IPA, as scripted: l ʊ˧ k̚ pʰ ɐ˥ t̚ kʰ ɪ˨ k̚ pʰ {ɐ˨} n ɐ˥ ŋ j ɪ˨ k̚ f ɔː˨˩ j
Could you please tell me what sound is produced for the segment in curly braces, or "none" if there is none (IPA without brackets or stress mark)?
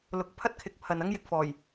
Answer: ɐ˨